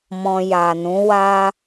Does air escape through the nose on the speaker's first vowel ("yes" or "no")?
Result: yes